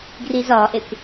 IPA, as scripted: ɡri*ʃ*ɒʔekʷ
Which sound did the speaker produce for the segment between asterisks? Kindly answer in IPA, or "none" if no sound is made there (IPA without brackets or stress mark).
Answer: z